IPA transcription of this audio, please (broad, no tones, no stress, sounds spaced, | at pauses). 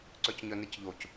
ǀ œ c ɲ œ n e c ʎ o c